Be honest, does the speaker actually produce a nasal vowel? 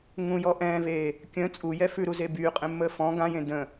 yes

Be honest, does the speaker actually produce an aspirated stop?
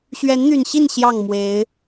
no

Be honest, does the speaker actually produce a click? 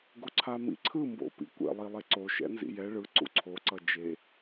yes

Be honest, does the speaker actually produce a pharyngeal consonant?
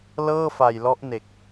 no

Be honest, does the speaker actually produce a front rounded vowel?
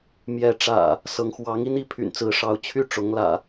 yes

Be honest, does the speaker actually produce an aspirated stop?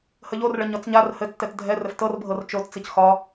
no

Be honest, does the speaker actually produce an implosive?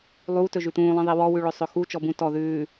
no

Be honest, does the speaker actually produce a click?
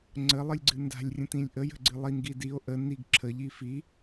yes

